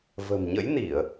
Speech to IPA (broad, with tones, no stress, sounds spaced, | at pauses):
v ə̤˨˩ m ɲ ə̰˧˥ j n i˧˩˨ ə̯